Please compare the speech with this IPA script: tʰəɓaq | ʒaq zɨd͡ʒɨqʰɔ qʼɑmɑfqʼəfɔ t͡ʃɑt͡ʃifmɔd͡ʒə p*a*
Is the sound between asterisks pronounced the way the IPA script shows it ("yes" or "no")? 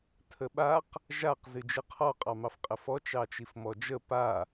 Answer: yes